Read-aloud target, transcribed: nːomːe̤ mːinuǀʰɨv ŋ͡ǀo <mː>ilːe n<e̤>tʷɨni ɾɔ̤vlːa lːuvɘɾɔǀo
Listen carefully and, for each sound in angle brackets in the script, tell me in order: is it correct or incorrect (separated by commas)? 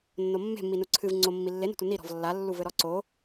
correct, incorrect